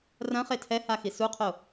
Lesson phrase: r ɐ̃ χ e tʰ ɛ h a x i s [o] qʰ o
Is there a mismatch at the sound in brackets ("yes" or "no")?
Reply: yes